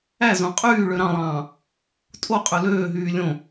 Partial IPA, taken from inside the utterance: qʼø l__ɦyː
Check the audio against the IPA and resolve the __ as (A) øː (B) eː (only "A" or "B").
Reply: A